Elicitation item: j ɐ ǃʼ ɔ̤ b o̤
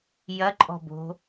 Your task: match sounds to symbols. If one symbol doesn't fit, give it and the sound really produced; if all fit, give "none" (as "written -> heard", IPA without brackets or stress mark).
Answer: none